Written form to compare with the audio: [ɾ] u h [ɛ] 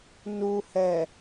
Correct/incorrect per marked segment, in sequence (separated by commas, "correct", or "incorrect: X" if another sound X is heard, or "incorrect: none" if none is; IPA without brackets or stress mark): incorrect: n, correct